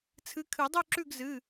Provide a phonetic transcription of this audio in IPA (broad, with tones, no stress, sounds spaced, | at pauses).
t͡sʰ ɨ˨˦ kʰ ɨ˨˩˦ dˤ ʉ˥˨ ǁ ʉ˥˨ ɡ z ɨ˩˧˩